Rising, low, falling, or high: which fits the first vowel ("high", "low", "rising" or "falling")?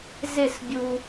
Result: falling